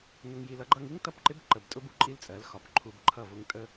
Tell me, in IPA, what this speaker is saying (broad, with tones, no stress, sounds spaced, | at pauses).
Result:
n ʊ˧ ŋ j i˧ l ʌ˧ ɡ͡ǃ ʌ˧ ŋ i˦ ŋ t ʌ˦˨ p ǃ ɪ˦ b ǃ ə˧ b tʼ ʊ˦ b u˨ ǃʼ i˦ l t͡sʼ ɜ˨˦ l x ɒ˨ p ǃʰ u˧ b ǃʰ ʌ˦˨ v ʊ˦ ŋ tʼ ə˦